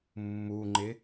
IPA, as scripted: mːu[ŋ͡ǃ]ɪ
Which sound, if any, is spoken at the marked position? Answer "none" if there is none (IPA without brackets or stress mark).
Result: ŋ͡ǃ